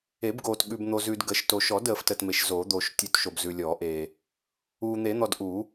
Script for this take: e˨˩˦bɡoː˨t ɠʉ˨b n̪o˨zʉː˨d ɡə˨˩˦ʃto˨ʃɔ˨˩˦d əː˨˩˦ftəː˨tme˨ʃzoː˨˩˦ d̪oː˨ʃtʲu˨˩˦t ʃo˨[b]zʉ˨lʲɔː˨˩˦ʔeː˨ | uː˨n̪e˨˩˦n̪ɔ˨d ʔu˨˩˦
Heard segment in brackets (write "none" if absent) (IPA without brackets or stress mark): b